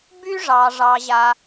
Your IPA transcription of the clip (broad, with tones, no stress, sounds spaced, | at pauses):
b y˥ ʐ ɑ˩ ʐ ɑ˩ ʑ a˩